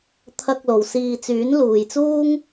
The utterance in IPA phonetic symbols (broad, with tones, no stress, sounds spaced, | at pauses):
t̪ʰ ɐ˧ k̚ l o˨ w s iː˧ t͡s yː˨˥ n l uː˨ j t͡s uː˥ ŋ